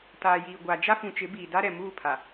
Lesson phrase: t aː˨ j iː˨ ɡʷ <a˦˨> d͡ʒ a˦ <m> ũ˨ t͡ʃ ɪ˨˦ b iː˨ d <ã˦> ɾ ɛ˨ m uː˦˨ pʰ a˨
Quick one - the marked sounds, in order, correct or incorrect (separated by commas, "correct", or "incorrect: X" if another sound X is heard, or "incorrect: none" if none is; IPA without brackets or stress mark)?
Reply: incorrect: a˨, incorrect: f, incorrect: a˦